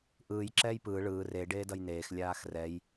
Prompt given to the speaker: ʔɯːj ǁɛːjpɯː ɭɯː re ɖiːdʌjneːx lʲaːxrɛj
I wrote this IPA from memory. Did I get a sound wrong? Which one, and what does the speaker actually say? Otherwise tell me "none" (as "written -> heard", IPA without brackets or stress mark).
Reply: iː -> eː